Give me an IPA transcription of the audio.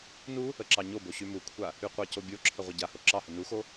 n u | ə ǁ ɑ ɲ o b o ɕ y m u kʷʰ a | y qʷ ɑ c o bʲ o ǁʰ ə ʁʷ ə ɟ a h o ǁ ɑ h ə n u x o

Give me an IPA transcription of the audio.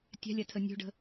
tʲ a̤ lʲ a tʰ ə nʲ o̤ ɖ ə̤

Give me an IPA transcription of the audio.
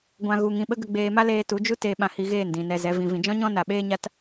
ɡʷ ã˧ ɣ u˧ ŋ ĩ˧ ɓ ə˦ ɡ ə˧ ɡ͡b eː˧ m a˦ l eː˧ t u˨˦ d͡ʒ u˦ t eː˧ ɓ ã˧ h i˧ ɣ eː˦˨ n d ĩ˨ n ɛ˧ z ɛ˨˦ v ĩ˧ v ĩ˧ d͡ʒ ɔ̃˦ ɲ ɔ̃˦ n a˧ ɓ eː˦ ɲ a˦ t

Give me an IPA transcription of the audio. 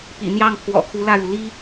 p ḭ˨˩ n̪ j ɑ˥˩ ŋ pʰ w ɔ̰˨˩ kʰ u˧˥ l ä˥˩ ɻ u˩ l i˥

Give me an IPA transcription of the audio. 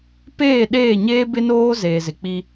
p eː˦˨ ɗ eː˦˨ ɲ eː˦ b ɪ˦ n oː˦ z eː˨ z ɪ˨ k͡p i˦

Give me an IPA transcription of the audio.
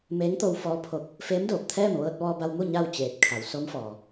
m eː˧˥ ŋ t̪ o˧ w f ɔː˧˥ pʰ o˧ k̚ | f eː˧˥ m d oː˧˩ p̚ t̪ʰ ɛː˥˨ m ʋ ɤː˧ t̚ ʋ ɔː˧ b a˧ w m u˥˨ ɲ a˥˨ w t͡ɕ eː˧˩ t̚ kʰ a˩˧ w s o˧˥ m f ɔː˩

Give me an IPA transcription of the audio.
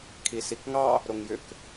kʰ i s i k ŋ ɑ | ɾ o ŋ j ʏ k

